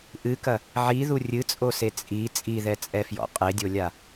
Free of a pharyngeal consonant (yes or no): no